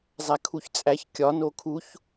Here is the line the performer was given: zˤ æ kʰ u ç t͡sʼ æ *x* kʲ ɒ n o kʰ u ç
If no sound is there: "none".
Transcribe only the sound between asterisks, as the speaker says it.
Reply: ç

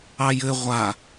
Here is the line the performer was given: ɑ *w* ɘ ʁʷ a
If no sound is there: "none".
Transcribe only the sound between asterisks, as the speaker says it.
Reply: j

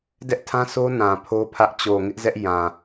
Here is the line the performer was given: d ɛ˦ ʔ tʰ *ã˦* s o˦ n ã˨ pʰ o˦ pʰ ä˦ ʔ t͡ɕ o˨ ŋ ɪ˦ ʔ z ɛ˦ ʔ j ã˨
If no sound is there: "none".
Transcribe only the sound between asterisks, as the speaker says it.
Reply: ã˦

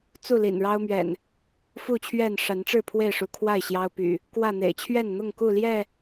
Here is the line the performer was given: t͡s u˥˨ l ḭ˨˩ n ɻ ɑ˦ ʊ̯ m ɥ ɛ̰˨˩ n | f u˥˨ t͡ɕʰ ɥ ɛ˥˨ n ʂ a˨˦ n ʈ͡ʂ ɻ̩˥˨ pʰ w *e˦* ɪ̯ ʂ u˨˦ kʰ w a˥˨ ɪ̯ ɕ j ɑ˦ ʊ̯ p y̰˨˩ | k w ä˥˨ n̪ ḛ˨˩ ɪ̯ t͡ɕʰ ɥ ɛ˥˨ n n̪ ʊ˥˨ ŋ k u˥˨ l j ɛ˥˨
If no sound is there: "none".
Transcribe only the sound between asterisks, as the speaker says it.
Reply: e˥˨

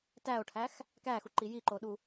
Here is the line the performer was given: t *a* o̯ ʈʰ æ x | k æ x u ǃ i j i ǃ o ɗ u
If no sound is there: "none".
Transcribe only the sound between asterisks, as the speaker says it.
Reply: æ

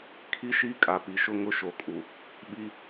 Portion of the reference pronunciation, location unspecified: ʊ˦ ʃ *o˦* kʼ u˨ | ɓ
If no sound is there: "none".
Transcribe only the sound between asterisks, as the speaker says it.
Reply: o˨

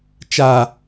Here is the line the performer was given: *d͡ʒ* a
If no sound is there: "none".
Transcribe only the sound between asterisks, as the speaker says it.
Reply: t͡ʃ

